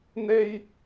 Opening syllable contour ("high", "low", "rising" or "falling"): high